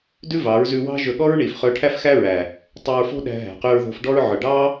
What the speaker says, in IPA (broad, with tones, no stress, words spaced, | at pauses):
dʉ˦vɑ˨˦ɹzʉ˧wɑ̤˦ ʒɵ˧ɠɔ˦ɹ ɳi˨f χɵ˧ʈʰæ˦fxæ˦ɹæ˨ | tˤø˧ɹfo̤˦ɗæ̤˧ ɦæ̤˨qy˧ɹðo̤˧fɖɔ˦ɹ ʕɵ˨ɖɑ˦